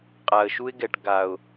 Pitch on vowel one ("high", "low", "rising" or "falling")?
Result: low